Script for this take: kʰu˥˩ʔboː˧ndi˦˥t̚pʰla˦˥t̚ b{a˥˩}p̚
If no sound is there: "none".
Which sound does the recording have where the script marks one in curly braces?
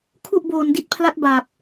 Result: a˨˩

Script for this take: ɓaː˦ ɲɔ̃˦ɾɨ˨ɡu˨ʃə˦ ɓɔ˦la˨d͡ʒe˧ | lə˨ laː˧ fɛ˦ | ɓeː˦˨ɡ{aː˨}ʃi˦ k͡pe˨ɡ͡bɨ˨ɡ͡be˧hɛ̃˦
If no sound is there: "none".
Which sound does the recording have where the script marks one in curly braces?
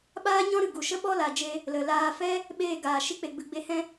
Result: aː˨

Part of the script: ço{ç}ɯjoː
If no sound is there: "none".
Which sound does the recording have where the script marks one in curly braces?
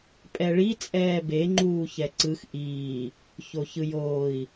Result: ç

